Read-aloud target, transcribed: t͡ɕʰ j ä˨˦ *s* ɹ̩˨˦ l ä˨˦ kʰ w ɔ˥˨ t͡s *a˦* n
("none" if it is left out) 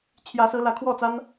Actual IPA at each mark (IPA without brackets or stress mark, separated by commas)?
s, a˦